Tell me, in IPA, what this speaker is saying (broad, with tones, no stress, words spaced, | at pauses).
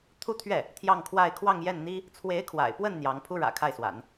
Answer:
t̪ʰu˥˧t̪ʰɥɛ˥˩ | t̪ʰjɑ˥˧ŋkʰwa˥˧ɪ̯ kʰwɑ˥˧ŋjɛ˥˩nn̪i˥ | t͡sʰwe˧˥ɪ̯kʰwa̰˨˩ɪ̯pwə˥˩n n̪jɑ˧˥ŋ pʰu˥ɻä̰˨˩kʰa˥˩ɪ̯swa̰˨˩˦n